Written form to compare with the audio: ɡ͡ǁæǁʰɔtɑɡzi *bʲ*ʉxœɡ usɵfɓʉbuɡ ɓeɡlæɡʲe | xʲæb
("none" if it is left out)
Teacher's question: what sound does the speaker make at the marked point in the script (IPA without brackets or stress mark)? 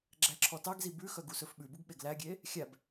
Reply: b